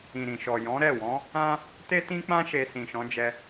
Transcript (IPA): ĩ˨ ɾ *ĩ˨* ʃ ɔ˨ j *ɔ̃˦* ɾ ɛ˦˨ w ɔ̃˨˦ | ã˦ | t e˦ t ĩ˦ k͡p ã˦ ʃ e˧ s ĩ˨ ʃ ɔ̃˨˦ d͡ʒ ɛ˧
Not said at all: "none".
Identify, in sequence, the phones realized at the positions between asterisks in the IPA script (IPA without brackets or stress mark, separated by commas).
ĩ˨, ɔ̃˨˦